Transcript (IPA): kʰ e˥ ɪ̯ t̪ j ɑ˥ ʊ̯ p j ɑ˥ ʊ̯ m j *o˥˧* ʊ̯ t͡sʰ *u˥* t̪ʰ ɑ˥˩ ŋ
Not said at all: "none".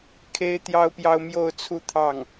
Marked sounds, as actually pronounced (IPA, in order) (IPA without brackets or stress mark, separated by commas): o˥˧, u˥˧